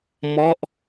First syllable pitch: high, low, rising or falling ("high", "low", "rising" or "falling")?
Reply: falling